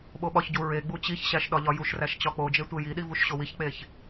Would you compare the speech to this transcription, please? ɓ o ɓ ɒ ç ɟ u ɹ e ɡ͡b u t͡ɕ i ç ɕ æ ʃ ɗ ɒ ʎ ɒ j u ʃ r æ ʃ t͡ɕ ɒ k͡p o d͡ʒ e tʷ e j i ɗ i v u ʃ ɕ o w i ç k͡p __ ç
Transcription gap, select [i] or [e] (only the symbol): e